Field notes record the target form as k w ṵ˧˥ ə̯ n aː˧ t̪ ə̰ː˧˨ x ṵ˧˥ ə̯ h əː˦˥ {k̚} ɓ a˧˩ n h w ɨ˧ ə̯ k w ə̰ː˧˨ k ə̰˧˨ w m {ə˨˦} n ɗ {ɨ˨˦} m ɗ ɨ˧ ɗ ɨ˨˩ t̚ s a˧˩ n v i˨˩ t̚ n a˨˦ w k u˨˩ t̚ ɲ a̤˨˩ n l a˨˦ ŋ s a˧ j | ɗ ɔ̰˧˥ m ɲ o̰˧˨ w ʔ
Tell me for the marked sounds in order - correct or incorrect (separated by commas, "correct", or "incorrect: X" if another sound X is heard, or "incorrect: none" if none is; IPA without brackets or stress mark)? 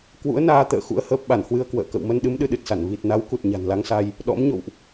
incorrect: p̚, incorrect: ə˧, correct